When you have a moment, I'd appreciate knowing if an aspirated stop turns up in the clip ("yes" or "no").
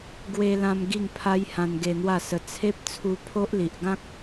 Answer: yes